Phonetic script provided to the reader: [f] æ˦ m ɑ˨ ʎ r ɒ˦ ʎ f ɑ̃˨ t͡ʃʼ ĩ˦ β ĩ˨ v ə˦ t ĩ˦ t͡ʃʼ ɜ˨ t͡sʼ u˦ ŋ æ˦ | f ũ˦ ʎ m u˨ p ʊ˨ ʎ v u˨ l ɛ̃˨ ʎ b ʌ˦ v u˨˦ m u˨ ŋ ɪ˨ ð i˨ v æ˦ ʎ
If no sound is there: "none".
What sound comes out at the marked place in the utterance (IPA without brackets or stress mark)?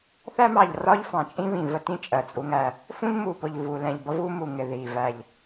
θ